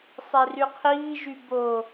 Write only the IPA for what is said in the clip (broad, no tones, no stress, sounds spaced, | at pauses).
sˤ e r y qʰ iː ʒ y b o